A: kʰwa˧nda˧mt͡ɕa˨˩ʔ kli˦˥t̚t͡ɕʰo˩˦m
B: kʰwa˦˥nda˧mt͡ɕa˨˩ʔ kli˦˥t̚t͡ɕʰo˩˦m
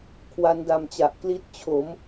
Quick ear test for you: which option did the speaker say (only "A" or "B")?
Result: B